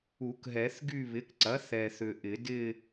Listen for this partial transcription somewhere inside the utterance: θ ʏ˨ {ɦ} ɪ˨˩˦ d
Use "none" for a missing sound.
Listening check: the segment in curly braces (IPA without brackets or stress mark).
ʔ